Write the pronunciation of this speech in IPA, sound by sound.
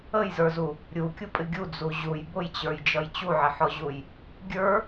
ə j z ə˞ z u | ɾʲ u kʲ u pʼ ɪ ɡʲ u d͡z u ʑ u j b ʊ j t͡ɕ ə˞ j d͡ʒ ʌ j t͡ɕ u ʕ ɪ ħ ɔ ʑ u j | ɡʲ ə˞

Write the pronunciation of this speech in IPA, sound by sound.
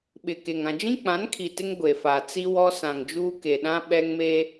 ɓ ɪ˨ k e˨ ŋ ã˨ d͡ʒ ĩ˦ k͡p ã˨˦ n kʰ i˨ t ɪ˦ ŋ ɡʷ e˨ f a˨ t͡s i˦ w ɔ˦ s ã˨ ŋ d͡ʒ uː˦ k e˨ ɗ ã˦ ɓ ɛ˦ ŋ m e˦

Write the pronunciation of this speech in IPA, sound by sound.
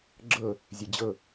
ɡ͡ǁ ɤ | zʲ e d͡ʑ ɤ

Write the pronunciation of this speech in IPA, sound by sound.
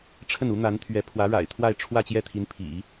ʈ͡ʂʰ ə˥˩ n u˧˥ n̪ a˧˥ n t̪ʰ ɥ ɛ˧˥ pʰ w ä˧˥ ɻ a̰˨˩ ɪ̯ t̪ʰ w a˥˧ ɪ̯ ʈ͡ʂʰ w ä˥˧ t͡ɕ j ɛ˥˩ t̪ʰ i˧˥ n pʰ ḭ˨˩˦

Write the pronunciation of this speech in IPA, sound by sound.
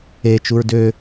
e t͡ʃ u ɹ d ø

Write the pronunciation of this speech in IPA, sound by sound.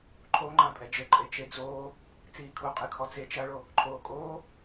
ǃʰ o ŋ͡ǃ ã pʼ ɛ d͡ʒ ɘ ǃʼ e t͡ʃ e d͡z oː | t͡s iː kʰ u qʼ ɨ kʰ ɔ t͡s e t͡ʃ ɐ ɭ o | ǃʰ oː kʼ oː

